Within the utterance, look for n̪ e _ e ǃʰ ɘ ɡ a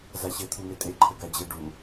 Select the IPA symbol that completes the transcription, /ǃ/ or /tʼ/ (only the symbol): tʼ